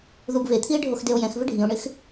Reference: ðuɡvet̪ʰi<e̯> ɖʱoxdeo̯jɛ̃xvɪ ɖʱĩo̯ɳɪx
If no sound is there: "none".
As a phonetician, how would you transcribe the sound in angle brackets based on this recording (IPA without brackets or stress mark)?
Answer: e̯